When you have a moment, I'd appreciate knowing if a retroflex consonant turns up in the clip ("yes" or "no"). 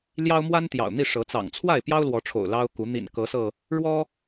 yes